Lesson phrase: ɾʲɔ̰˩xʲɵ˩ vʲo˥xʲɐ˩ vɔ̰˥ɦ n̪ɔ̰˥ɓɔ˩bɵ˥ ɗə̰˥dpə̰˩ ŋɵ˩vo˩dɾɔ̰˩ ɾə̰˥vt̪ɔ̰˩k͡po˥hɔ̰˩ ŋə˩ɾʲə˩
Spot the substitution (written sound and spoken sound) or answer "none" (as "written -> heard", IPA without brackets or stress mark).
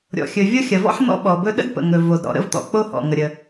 ɦ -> ħ